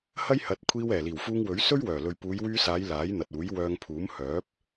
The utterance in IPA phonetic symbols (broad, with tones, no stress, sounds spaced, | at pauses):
h ɐ˥ j h ɐ˨˥ t̚ kʷʰ iː˧ w ɛː˨˩ l iː˨˩ w f uː˧ ŋ w ɵ˨˥ ɥ s ɵ˥ ɥ w œː˨˩ l ɵ˨ ɥ p uː˨˧ j w yː˧ s aː˨˧ j l aː˨˥ j n̪ ɐ˨ t̚ uː˨˥ j w œː˧ ŋ pʰ uː˨˥ m h œː˨˥ p̚